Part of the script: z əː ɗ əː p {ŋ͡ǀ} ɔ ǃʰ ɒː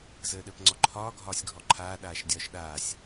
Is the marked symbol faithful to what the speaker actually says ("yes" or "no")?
yes